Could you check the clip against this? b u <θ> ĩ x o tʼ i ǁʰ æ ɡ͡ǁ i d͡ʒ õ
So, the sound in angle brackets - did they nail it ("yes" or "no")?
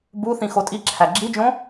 yes